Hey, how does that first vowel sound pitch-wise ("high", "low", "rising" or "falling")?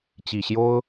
low